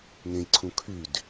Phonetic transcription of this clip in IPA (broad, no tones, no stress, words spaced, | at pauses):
ŋẽjǀʰũ kʰyd